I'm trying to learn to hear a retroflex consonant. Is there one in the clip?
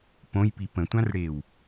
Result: yes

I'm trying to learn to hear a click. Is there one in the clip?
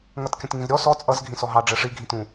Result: no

